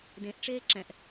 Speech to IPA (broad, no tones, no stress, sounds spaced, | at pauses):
d ẽ ʔ ʈ͡ʂ eː ǁ ɛ̃ ʔ